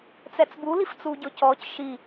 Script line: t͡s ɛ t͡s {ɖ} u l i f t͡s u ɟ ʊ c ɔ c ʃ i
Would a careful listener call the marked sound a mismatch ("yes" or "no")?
yes